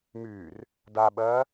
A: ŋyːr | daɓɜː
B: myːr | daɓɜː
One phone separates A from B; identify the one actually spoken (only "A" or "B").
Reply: B